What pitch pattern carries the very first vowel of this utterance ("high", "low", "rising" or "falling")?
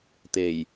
low